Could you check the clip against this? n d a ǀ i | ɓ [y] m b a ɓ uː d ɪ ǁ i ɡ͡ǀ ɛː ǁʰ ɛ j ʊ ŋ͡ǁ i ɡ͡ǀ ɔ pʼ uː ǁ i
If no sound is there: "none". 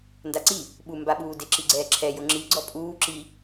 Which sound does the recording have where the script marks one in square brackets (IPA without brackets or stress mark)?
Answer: u